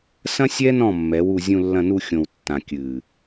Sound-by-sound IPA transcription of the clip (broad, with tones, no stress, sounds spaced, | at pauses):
s ɐ̃˦ sʲ ɛ˦ n ɔ̃˦˨ mː ɛ˨˦ w u˧ zʲ ũ˧ lː ɐ̃˧ n u˧ xʲ õ˨ w tː ã˨ kʲ ɨː˨